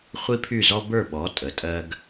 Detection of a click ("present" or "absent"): absent